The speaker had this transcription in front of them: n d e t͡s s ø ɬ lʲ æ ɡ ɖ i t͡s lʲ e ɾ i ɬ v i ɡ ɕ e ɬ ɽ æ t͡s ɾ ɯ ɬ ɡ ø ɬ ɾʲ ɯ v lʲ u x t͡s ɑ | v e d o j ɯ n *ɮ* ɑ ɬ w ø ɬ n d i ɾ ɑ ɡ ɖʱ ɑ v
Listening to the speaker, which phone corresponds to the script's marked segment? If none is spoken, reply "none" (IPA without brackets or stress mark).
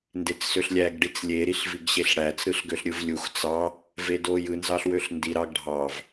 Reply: z